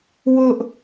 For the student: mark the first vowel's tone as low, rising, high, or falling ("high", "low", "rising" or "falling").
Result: high